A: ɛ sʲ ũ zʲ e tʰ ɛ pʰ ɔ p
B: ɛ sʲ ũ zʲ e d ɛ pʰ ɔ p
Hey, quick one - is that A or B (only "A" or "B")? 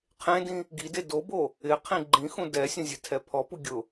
A